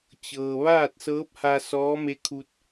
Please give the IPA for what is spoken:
t͡ɕ ɤː˩ ʋ aː˥˨ t̚ s ɤː˧˥ p̚ h a˧ s ɔː˧˥ m e˧˥ kʰ u˧ t̚

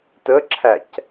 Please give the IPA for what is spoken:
t ə ǁʰ æ c

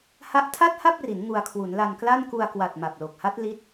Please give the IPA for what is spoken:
h a˦˥ ʔ tʰ a˥˩ t̚ h a˥˩ p̚ r i˩˦ n ŋ u˧ a̯ kʰ w u˩˦ n l a˧ n k l a˥˩ n k u˧ a̯ k w a˨˩ t̚ m a˨˩ p̚ l o˨˩ k̚ h a˦˥ t̚ l i˦˥ t̚

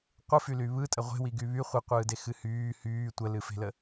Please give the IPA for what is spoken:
qʷ ɯ f y l y β ɯ tʼ ə ʁʷ e̤ w i ɡ y β y χʷ i qʷ ɯː d e x ɨ h yː h yː tʷ ə l ɨ f e̤ l ə

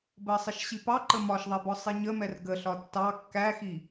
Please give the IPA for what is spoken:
b ɜ sˤ ɪ ʃ ɕ i p ɑ ǃ ə m ɒ ʃ ðˤ ɛ b ɔ sˤ i ɲ ə m ɛ r ɡ ə ɬ ɒ tː ɑ kː æ x i

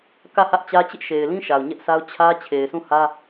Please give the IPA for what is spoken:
k ä˦˨ h ä˦ ʔ t͡ɕ ä˦ t͡ɕ ɪ˦ ʔ ʃ e˨ ɪ̯ l ĩ˦ ʃ a˨ ʊ̯ ɲ ɛ˦ ʔ sʰ a˦ ʊ̯ t͡ɕʰ ä˦ t͡ɕʰ e˨ ɪ̯ sʰ ũ˦˨ h ä˦

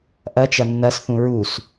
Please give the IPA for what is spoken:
ʔ ɐ t͡ʃ ɐ nː ɐ s θ ũ ɹ u s

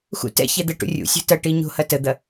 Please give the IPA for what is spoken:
x ṵ t ɛ̰ ç ɛ d̪ ɛ ʈ ṵ rʲ ṵ sʲ o̤ t ɐ ʈ i ɲ o̤ h ɐ t ə d̪ ɐ

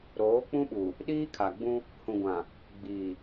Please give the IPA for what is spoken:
ɾ oː˨˦ k͡p ũ˦ ɓ u˨ | ɗ iː˦ kʰ a˨ ɡ͡b ũ˦ | h ũ˨ ɡʷ ã˨ | ɡ͡b iː˨

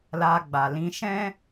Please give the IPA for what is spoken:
l a˧ ɡ͡b a˨ l ĩ˧ ʃ ɛ̃˦

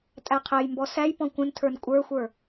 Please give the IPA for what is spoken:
tʼ æ qʰ æ j m b ɔ s æ j p ɔ̃ kʷ ə̃ n tʰ ə˞ n kʷʼ ə˞ xʷ ə˞

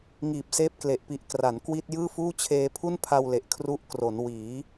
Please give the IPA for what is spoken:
ŋ iː˨˩ p̚ s eː˦˥ p̚ k l e˨˩ ʔ p i˨˩ ʔ k r a˩˦ n k w i˥˩ t̚ j ɯː˥˩ f uː˥˩ t͡ɕʰ eː˧ pʰ u˥˩ n pʰ a˧ w l e˨˩ ʔ kʰ r u˦˥ ʔ k r o˩˦ n w iː˩˦

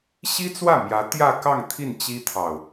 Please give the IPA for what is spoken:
ɕ i˥ t͡s w ä˥˩ m j ä˧˥ t̪ j ä˥˧ k ɑ˥˧ ŋ t̪ʰ i˥˩ n t͡ɕ i˥ t̪ʰ ɑ˨ ʊ̯

